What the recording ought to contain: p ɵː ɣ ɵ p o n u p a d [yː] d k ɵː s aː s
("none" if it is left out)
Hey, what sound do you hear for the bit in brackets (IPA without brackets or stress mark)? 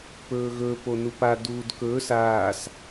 uː